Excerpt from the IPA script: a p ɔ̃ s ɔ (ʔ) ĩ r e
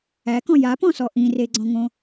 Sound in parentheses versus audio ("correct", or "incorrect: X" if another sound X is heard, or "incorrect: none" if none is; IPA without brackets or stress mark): correct